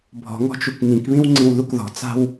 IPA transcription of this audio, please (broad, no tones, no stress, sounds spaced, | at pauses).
bʱ ɔ̤ ŋ ɔ̤ t͡ʃ u k ŋ ĩ k β ĩ w ŋ͡ǀ ĩ w ð u k ð ɔ̤ t͡s a̤ w